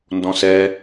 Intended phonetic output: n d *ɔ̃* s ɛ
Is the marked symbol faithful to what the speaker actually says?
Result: yes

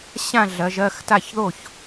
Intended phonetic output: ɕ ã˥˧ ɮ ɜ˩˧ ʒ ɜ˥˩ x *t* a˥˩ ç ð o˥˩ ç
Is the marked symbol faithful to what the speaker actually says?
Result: yes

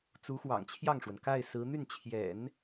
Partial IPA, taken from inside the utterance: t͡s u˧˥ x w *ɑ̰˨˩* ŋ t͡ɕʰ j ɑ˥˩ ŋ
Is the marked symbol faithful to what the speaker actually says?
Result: yes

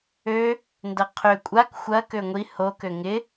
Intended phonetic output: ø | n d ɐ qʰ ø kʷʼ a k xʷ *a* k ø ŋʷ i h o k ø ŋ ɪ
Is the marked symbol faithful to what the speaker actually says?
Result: no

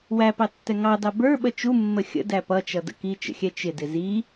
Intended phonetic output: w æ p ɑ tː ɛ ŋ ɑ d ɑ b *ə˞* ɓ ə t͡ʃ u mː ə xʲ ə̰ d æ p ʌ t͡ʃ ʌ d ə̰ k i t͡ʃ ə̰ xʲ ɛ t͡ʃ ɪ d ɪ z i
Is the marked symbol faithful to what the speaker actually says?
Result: yes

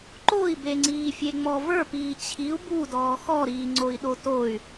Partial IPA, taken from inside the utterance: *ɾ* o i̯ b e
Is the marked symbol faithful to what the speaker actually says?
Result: no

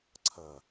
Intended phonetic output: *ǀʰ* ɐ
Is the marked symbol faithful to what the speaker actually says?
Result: yes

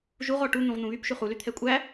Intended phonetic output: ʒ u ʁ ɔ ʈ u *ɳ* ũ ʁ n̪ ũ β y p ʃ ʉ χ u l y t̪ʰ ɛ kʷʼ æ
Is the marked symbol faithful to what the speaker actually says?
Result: no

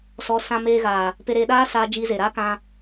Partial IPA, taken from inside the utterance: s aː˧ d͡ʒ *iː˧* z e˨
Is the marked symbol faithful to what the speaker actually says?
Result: yes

